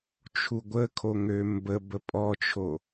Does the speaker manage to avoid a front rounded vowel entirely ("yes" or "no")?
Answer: no